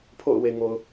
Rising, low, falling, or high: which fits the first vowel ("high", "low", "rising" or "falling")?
falling